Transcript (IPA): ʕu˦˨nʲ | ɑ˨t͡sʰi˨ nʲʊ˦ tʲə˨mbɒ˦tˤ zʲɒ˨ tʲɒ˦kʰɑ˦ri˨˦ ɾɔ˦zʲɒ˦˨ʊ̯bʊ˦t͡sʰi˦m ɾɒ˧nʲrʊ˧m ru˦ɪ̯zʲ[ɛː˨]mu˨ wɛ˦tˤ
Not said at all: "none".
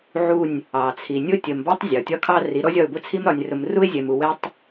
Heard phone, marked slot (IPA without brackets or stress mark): ɛ˨